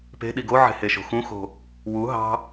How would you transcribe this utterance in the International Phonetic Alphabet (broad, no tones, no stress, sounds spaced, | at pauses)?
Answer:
p e̤ ɗ i ɡ o ʕ e̤ h e ʃ o̤ x ũ x o̤ | w u ɦ ɑ̤